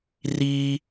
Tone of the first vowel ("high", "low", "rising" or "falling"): high